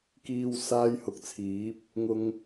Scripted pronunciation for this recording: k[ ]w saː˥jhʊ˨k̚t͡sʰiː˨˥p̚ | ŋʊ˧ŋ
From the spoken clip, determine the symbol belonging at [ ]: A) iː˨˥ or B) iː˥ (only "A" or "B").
B